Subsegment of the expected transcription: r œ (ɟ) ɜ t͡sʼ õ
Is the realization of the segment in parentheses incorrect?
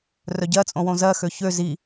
no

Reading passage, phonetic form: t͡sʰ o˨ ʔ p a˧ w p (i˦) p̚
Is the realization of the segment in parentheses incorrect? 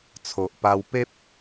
yes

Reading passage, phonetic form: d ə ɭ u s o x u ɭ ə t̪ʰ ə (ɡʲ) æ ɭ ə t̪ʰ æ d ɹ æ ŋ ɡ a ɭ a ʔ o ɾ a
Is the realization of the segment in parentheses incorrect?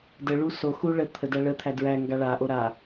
yes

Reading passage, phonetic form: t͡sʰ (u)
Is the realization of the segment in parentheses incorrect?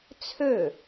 yes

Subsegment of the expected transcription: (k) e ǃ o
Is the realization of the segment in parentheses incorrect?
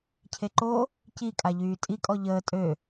yes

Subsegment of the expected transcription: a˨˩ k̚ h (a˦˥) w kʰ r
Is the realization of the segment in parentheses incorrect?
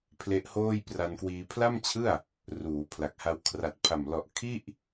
no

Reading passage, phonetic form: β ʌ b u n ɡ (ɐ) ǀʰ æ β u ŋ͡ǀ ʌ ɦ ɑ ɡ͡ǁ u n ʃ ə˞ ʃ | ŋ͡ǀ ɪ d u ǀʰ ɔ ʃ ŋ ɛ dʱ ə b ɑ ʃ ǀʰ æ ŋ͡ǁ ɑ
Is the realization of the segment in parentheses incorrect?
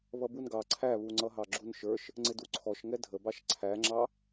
yes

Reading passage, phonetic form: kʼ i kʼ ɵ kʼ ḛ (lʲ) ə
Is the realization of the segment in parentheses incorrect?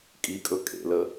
yes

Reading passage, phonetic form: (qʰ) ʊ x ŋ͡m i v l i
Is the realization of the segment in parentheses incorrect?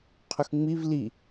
no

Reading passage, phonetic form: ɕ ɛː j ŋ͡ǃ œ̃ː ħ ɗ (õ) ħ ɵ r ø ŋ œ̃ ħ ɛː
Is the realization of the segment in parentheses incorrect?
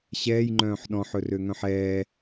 yes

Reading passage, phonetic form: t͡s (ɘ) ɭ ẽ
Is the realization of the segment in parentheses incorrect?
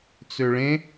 yes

